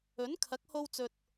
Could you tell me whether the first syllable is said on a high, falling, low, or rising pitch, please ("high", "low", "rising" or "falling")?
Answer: rising